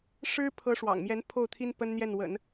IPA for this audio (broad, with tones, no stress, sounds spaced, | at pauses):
ʂ ɻ̩˥ pʰ ɤ˧˥ ʂ w ɑ̰˨˩ ŋ m j ɛ˧˥ n pʰ o˥˩ ʊ̯ t̪ʰ i˥ n p ə˥ n n̪ j ɛ˥˩ n w ə̰˨˩˦ n